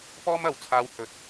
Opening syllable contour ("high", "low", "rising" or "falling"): high